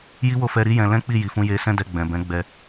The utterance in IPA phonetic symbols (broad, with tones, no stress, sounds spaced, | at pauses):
j i˦ w o˦˨ f ɛ˧ ɾ i˦ j ɛ̃˧ l ɛ̃˦ k͡p i˦˨ j i˨ f ũ˧ j e˧ s ɛ̃˦ d ɛ˧ ɡ͡b ɛ̃˨ b ɛ̃˨˦ ɡ͡b ɛ˧